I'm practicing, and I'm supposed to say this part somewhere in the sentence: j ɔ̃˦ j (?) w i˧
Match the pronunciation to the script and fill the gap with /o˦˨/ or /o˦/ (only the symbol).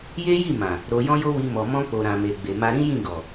o˦